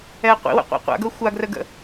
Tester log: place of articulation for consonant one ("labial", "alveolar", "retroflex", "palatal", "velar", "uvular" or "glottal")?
uvular